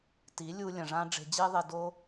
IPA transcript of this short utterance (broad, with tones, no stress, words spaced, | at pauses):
ti˨˦ lʲu˧ lʲɐ̃˨ʐã˦ ɖ͡ʐe̤˧d͡ʑi˦ðˤe˧do˦